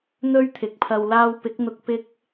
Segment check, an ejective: absent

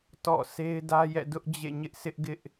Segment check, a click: absent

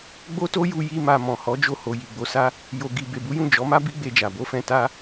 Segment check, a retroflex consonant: absent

